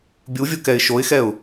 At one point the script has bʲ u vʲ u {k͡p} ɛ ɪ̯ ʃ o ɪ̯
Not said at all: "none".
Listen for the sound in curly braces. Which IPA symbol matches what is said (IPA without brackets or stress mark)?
k